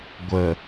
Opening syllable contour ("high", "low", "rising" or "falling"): low